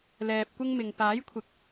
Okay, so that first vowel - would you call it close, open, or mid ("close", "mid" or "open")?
mid